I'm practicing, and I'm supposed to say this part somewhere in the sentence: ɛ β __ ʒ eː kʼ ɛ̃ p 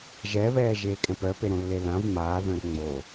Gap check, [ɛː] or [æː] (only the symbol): ɛː